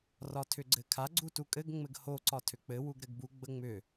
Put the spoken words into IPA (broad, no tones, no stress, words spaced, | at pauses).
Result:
rɒtʰʏɡ͡ǀɘkʰa ɡ͡ǀutukʼɘɡ ŋ͡mɘɡho ǀɒtʰʏk͡pɘ wuɡɾɘɡbu ɡ͡bəŋ͡mʏ